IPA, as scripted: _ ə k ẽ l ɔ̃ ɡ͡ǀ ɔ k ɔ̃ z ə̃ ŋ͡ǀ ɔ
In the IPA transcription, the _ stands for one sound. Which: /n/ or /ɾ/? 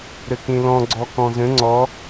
ɾ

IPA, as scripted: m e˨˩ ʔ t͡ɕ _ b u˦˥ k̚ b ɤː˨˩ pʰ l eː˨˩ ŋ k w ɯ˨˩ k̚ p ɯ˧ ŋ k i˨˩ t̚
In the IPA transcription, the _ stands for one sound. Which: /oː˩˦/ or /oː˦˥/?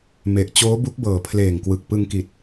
oː˦˥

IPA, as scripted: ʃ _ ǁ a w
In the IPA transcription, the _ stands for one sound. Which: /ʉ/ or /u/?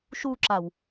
u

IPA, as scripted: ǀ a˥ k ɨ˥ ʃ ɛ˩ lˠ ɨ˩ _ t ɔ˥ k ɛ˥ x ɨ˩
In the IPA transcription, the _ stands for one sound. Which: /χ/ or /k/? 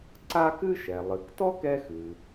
k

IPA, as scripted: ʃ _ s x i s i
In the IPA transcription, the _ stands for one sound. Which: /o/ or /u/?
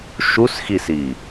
u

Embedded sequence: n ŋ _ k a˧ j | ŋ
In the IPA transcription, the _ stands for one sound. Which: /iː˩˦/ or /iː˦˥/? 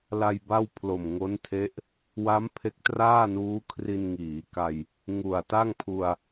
iː˩˦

